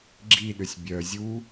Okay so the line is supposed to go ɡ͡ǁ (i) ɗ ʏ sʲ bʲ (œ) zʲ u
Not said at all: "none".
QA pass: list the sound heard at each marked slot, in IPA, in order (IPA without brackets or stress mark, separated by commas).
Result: i, œ